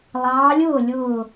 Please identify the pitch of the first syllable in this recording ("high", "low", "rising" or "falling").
rising